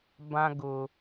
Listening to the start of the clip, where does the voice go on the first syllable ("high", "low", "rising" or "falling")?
high